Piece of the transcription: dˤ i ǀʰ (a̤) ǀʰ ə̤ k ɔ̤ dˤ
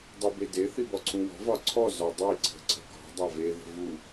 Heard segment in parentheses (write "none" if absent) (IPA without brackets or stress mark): ə̤